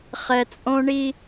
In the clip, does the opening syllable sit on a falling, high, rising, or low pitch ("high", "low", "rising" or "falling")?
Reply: low